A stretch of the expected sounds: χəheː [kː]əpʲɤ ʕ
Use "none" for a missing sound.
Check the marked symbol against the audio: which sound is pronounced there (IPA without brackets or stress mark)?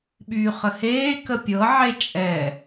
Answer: k